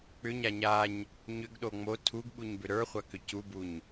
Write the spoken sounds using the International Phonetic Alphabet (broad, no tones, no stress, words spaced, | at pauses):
k͡pʏɲa ɲaɲ | ɲʏɡɗo ŋ͡mo tʰuɡ ɓuɲbʏɾə˞χʷa kʏcubuɲ